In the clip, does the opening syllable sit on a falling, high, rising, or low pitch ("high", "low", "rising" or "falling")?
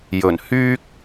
low